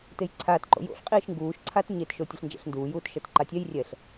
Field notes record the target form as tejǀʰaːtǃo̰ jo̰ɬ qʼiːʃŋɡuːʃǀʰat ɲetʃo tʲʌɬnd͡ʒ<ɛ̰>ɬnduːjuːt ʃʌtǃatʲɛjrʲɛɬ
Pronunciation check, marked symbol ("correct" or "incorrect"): correct